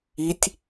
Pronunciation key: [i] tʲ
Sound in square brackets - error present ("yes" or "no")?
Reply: no